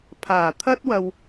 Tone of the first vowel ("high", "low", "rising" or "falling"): low